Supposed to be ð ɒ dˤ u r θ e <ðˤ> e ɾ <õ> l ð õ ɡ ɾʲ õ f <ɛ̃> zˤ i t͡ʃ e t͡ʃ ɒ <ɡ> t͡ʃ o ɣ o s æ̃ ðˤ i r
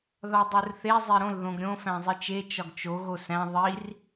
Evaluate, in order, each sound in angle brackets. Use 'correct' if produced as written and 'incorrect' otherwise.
incorrect: zˤ, correct, incorrect: æ̃, correct

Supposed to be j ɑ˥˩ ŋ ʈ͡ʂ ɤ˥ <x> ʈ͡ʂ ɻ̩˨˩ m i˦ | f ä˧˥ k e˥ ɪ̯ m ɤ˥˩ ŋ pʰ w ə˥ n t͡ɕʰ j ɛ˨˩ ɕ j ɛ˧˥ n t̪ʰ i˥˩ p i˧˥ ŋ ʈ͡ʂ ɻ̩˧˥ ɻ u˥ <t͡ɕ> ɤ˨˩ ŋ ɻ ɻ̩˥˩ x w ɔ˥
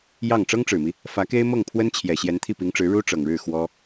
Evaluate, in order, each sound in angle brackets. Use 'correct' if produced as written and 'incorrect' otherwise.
incorrect: ŋ, incorrect: ʈ͡ʂ

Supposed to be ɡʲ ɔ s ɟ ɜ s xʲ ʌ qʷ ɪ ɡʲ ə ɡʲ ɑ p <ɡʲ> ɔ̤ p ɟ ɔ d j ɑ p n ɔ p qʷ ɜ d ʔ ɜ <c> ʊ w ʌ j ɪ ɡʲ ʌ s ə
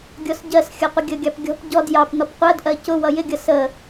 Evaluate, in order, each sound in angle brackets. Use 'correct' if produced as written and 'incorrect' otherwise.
correct, correct

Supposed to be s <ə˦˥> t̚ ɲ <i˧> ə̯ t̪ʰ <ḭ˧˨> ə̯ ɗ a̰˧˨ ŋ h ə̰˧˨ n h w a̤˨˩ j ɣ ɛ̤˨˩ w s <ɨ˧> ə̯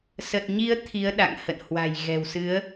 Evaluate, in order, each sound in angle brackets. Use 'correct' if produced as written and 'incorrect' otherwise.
incorrect: ə˨˩, incorrect: i˨˦, incorrect: i˨˦, incorrect: ɨ˨˦

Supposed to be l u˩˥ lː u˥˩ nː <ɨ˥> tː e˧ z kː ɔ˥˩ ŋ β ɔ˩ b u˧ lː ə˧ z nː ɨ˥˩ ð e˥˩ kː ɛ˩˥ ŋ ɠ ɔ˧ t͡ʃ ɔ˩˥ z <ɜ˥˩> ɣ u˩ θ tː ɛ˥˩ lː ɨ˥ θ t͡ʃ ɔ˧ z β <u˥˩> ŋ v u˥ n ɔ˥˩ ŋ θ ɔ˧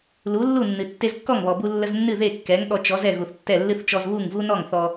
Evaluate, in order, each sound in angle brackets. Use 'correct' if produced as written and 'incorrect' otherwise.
incorrect: ɨ˩, incorrect: ɛ˥˩, correct

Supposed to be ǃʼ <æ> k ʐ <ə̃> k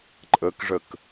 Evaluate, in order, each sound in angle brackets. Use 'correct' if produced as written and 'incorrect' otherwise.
incorrect: ə, incorrect: ə

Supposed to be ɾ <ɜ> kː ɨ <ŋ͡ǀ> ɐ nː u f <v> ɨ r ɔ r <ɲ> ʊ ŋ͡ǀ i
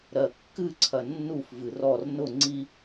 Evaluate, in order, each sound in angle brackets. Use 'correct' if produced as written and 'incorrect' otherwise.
correct, incorrect: ǀʰ, correct, incorrect: n

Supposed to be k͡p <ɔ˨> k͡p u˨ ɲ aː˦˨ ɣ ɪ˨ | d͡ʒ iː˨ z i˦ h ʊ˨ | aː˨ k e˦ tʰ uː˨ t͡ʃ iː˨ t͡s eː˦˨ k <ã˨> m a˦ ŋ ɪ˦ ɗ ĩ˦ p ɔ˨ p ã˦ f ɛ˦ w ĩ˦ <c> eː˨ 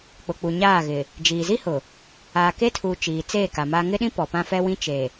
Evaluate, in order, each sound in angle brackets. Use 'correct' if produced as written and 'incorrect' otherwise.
incorrect: ʊ˨, incorrect: a˨, incorrect: t͡ʃ

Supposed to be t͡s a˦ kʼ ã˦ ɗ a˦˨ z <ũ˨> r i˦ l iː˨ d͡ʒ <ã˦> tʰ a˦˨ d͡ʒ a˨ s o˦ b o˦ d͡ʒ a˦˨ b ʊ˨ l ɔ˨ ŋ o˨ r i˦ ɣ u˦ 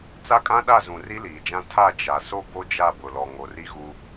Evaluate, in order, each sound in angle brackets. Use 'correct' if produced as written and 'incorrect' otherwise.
correct, correct

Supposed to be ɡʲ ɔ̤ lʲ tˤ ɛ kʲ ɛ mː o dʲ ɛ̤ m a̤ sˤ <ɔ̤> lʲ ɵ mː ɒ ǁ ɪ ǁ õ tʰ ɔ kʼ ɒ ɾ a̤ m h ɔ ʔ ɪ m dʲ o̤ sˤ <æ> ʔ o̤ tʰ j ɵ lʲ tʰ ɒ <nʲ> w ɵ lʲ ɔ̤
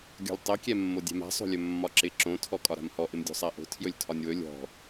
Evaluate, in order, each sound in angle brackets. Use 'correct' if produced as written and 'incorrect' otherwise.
incorrect: o̤, correct, correct

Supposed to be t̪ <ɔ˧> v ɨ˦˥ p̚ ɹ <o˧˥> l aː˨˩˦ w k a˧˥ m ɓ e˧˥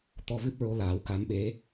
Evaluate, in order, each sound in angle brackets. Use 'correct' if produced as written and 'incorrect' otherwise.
correct, correct

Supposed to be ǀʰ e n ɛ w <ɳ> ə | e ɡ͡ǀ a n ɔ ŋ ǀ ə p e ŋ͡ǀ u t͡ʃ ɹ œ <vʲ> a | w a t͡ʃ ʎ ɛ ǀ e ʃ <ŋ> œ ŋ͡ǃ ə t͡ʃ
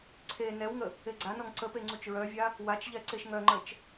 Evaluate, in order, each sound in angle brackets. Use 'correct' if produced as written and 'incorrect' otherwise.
incorrect: ŋ, correct, correct

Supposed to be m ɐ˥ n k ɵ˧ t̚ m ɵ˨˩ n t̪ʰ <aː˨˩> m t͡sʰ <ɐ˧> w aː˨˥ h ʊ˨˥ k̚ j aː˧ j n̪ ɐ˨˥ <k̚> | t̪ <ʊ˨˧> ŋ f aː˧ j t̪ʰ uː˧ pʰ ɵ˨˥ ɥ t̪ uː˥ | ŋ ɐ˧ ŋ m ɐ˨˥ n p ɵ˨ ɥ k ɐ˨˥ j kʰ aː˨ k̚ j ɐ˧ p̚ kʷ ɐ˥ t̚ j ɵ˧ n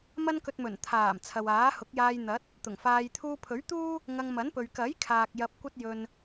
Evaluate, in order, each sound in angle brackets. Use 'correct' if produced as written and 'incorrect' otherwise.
correct, incorrect: ɐ˨, incorrect: t̚, incorrect: ʊ˨˩

